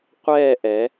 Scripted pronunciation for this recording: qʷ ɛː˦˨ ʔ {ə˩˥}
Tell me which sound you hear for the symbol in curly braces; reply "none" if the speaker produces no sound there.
ɛ˩˥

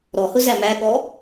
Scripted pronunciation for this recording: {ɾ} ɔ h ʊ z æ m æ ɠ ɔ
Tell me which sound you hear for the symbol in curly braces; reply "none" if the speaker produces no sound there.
ɾ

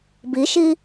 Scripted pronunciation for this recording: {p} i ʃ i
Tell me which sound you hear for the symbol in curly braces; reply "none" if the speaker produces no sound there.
b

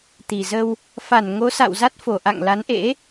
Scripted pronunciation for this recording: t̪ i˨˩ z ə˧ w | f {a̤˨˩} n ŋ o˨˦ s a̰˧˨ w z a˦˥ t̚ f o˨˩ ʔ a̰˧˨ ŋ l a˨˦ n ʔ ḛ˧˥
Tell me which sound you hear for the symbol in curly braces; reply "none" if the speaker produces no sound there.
a˧˩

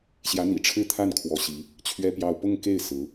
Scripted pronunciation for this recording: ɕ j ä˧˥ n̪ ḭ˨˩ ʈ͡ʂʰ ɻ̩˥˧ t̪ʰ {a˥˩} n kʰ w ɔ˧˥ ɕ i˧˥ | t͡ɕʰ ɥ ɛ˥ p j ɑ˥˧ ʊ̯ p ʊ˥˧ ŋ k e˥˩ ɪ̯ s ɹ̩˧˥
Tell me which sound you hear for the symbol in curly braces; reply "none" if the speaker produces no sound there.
a˥˩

